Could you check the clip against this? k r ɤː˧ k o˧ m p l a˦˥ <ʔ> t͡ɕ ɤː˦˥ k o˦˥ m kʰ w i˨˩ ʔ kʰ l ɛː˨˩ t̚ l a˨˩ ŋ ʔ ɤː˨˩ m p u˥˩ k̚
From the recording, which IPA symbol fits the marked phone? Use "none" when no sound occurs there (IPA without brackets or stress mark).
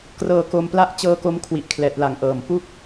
ʔ